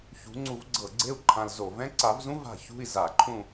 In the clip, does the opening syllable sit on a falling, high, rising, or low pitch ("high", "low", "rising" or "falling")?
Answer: rising